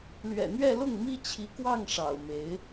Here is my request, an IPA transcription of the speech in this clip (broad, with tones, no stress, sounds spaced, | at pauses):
l ɥ ɛ̰˨˩ n̪ ɥ ɛ˥˧ l ʊ˥˩ ŋ m i˥ t͡ɕʰ i˧˥ k w ɑ˥˩ ŋ ʂ ɑ̰˨˩ ʊ̯ m e˧˥ ɪ̯